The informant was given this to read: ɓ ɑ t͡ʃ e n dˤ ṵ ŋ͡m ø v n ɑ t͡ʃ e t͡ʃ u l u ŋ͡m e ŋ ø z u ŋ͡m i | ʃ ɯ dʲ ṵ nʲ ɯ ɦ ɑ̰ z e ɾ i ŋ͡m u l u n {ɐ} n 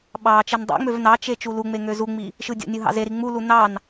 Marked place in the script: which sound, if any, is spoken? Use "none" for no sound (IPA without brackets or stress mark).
ɑ